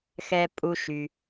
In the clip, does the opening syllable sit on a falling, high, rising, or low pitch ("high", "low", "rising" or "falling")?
low